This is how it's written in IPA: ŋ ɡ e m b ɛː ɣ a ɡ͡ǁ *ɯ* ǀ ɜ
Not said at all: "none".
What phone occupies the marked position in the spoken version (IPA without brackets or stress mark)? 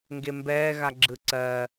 ɯ